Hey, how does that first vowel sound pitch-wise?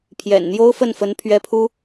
low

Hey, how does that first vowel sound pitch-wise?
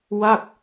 falling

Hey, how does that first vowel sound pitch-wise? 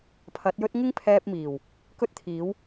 rising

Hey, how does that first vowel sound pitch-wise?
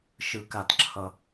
low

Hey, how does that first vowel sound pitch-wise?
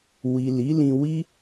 low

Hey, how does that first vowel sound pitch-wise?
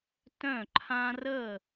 falling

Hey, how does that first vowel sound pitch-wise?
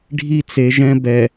high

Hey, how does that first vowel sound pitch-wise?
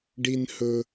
high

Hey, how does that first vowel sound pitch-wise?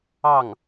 falling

